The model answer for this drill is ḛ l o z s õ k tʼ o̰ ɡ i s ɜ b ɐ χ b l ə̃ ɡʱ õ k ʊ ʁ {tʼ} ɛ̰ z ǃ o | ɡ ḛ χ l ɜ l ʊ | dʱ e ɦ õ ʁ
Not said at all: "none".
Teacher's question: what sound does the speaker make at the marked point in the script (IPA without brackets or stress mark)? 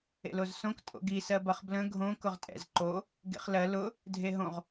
tʼ